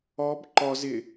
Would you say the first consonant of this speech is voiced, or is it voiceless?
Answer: voiced